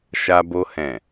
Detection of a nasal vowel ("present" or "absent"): present